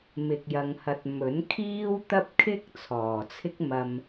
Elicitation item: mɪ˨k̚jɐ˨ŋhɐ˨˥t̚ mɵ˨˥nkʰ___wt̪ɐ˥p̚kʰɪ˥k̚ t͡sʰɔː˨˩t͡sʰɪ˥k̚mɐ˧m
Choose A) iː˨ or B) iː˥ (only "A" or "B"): B